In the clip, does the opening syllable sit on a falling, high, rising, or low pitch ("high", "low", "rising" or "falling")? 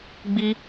high